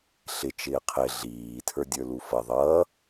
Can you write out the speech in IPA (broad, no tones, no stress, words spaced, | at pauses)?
ɬɪ t͡ʃɪːqʰɪ ɮiː tʰə˞dʲə˞lufʌ ðˤʌː